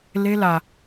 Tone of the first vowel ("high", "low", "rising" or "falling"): high